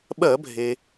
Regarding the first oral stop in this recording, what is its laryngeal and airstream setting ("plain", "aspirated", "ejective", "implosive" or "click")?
implosive